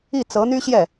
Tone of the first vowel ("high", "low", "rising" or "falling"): falling